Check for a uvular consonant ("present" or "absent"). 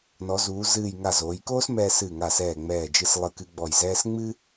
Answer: absent